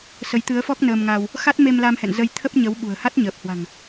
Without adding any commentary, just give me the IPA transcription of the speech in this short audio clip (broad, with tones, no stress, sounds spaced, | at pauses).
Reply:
s ə˨˦ j t̪ ɨ˨˦ ə̯ f ɔ˦˥ k̚ n əː˧ m ŋ aː˧ w | x a˦˥ t̚ m e˧ m l a˧ m h ɛ̰˧˨ n z ə˧ j t̪ʰ ə˦˥ p̚ ɲ ə˨˦ w ɓ ṳ˨˩ ə̯ h a˦˥ t̚ ɲ əː˨˩ p̚ h w a̤˨˩ ŋ